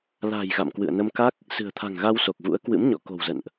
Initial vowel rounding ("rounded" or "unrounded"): unrounded